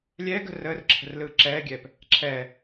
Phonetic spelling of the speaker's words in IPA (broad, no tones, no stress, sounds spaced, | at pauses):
lʲ ɛː ɡ ə̤ r əː r ǁʰ ə̤ r l ɯː ǁ ɛː ɡʲ ɛː p | ǁʰ ɛː